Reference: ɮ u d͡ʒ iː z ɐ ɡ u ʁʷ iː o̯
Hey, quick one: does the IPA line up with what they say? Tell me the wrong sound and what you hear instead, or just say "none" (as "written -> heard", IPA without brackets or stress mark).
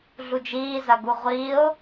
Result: none